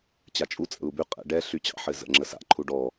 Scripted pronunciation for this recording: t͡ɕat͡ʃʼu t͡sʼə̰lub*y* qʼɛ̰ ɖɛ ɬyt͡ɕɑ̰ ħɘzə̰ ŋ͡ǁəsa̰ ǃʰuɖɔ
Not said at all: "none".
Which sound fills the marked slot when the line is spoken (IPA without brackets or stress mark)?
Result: y